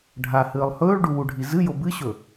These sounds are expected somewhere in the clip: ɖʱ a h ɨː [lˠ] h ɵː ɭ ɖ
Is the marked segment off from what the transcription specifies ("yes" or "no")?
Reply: no